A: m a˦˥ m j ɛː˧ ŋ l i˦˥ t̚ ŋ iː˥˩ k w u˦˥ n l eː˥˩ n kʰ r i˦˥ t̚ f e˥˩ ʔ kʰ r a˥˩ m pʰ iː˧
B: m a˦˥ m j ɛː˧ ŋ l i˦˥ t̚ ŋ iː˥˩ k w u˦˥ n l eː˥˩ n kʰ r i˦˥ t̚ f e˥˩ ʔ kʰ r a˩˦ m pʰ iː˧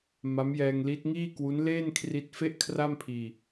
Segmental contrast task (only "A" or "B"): A